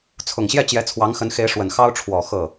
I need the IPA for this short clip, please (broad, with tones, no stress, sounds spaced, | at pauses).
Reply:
t͡sʰ ʊ˨˩ ŋ ɕ j ɛ˥˩ t͡ɕ j ɛ˧˥ t͡sʰ w ɑ˧˥ ŋ x ə˧˥ n x e˧˥ ɪ̯ ʂ w ə˨˩ n x ɑ˥ ʊ̯ ʈ͡ʂʰ w ɔ˨˩ x ɤ˥˩